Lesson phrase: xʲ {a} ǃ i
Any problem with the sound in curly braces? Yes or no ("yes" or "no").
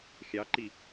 yes